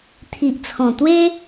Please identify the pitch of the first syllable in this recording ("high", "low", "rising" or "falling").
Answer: low